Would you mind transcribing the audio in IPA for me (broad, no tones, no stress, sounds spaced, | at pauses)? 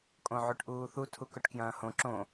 kʼ õ ʕ ʉ ʈ ʔ uː θ u tʰ u k ɵ ʈ k j ɐ̃ː h õ ǁ õ